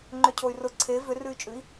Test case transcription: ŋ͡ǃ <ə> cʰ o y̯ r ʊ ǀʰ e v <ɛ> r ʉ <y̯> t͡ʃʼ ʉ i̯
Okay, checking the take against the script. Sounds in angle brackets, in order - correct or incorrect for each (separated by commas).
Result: incorrect, incorrect, correct